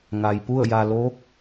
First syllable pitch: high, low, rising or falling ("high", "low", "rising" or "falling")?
low